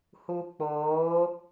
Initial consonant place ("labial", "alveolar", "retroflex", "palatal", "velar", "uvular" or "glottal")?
glottal